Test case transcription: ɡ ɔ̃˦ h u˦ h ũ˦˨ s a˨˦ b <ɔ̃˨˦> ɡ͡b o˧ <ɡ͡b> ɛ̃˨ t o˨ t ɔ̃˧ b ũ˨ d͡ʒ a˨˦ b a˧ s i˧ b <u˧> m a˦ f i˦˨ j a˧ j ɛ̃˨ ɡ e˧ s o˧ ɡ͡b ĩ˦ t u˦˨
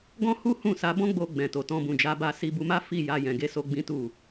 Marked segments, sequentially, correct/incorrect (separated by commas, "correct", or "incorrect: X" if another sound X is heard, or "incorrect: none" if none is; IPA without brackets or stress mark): incorrect: ɔ̃˦, correct, correct